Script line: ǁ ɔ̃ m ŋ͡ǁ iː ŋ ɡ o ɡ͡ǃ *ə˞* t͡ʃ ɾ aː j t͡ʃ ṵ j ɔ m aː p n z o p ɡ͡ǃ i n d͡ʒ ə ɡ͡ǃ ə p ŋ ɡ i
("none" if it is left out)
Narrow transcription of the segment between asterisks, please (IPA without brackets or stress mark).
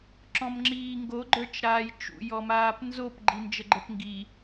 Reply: ə˞